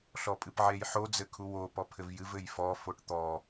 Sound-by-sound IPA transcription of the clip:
ɬɔpʼɨpʕejħo d͡zɘkʰuwo pɔpʰɘvjɨv ɘjfɔ foʈt̪ɔ

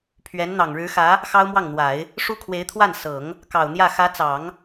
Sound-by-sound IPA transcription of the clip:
pʰɥɛ˧˥n n̪ɑ˨˩ŋɻɻ̩˧˥xä˧˥ | xɑ˥ʊ̯mwɑ˥˩ŋn̪wa˨˩˦ɪ̯ | ʂu˥kʰwe˧˥ɪ̯t̪ʰwa˥˩n sɤ˨˩˦ŋ | kɑ˨˩ʊ̯n̪jä˥˩ xä˧˥t͡sɑ˨˩˦ŋ

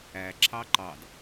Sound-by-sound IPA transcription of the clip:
æ ǁʰɑǃɑd

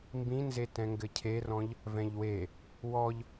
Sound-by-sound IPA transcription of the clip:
mbĩnze tɛ̃ŋɡɘcʰerɔ̃ʎ | vɛ̃ʎwe | wɔʎ

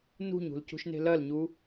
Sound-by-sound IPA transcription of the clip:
nṳɲṳl cṳʃne̤lɐlɲu

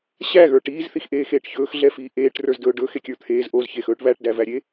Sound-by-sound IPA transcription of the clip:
ɕæɣə˞ ʈiːzθixʔeːxeːʈ çɵːxɮɛfiː ʔeːʈrə˞zdɵː ɖɵxekʲə˞ t̪ʰeːz ʔozçexɵːʈ βæʈdævæɾʲe

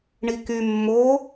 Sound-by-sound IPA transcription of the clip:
ɳiky mːo

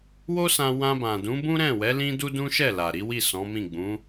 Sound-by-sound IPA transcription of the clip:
wo˦sã˧ wã˧bã˨ dũ˨˦bũ˦ ɾɛ̃˦˨wɛ˨˦ lĩ˦du˦dũ˦ ʃɛ˦˨la˨ɾi˨˦ wi˦˨sɔ̃˨˦mĩ˦˨ ɡ͡bũ˨˦

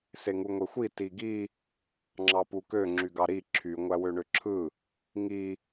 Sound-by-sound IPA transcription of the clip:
seŋuŋʷexʷi tiɡi | ŋ͡ǁɑpukø ŋ͡ǁyɡɑɾi ǁʰy ŋʷæwøɳøǁʰɯ | ŋi

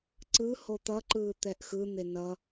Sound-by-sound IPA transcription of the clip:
ǀɯ hot̪ʌǃɯː t̪ɛʔxɯn̪e nʌ

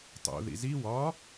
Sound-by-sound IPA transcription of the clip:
tˤo̰ðḭ zi wɒ

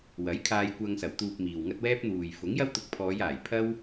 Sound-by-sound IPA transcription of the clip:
wɐ˨˥j kʰaː˧jkʷɐ˧ŋsɐ˨˩w t̪uː˨p̚ miː˨wŋɐ˥t̚ wɛː˥p̚n̪uː˨j fʊ˨˥ŋjɐ˥w t̪ʊ˧k̚ pʰɔː˨˧jaː˨˩j pʰɐ˥w

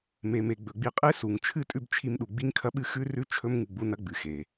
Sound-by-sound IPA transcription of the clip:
me˨me˨ ɡ͡bɵ˨ɡ͡bi˧qʼe˦ su˨ŋ t͡ʃʰɨ˦˨tʼʉ˦˨bt͡ʃʰi˧mɗu˨ ɡ͡bi˦ŋkʰɐ˦ɓɨ˦ xʉ˦ rʉ˦ t͡ʃʰɵ˦mŋɨ˨ ɡ͡bu˦nɐ˦ ɡ͡bɨ˨xe˨

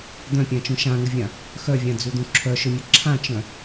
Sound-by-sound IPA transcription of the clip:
d̪œ̃pʲãt͡ʃũ ʃãŋəvʲã | xœvʲãd͡zud̪ũ ǁʰœʃɵmʲə ǁʰãt͡ʃœ̃

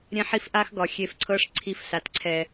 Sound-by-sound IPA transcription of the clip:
ɾʲɛ̃˦ħi˦fʔa˦xɡɒ˨ xʲe˧fǀʰɤ˦ʂǀʰi˧fsa˨t ǀʰɛ˨

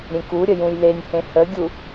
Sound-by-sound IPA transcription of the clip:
ɾʲẽkuɾʲə jũjlenʲhẽ həɡʲu

